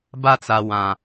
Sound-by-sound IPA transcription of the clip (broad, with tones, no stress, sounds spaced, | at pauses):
b a˦ t͡s a˨ w ã˨